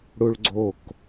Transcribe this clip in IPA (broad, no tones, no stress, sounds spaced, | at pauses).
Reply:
ɽ u ɭ ɡ͡ǀ o k